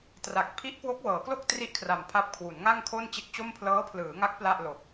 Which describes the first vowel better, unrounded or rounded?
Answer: unrounded